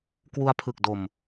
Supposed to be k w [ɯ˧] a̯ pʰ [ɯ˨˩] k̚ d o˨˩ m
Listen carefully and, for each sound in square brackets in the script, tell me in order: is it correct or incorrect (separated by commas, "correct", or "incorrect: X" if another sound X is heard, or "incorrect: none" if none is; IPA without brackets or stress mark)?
incorrect: u˧, correct